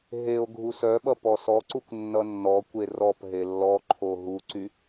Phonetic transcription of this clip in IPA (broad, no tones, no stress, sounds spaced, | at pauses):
ɦ e o̯ ɡʱ u s œ ɓ ʌ p ɔ s ɔ ǀ u kʷ nː ʌ nː ɔ kʷ e r ɔ p ɦ e lː ɔ ǃʰ o ɦ u ǀ y